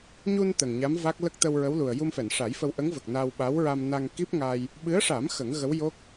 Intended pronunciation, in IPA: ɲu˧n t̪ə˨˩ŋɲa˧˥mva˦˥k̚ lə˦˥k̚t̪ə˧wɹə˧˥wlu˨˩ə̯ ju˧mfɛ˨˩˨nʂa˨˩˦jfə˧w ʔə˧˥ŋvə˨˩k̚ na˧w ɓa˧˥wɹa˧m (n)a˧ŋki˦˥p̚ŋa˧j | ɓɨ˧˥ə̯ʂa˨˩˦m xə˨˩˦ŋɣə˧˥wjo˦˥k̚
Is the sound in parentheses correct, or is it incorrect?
correct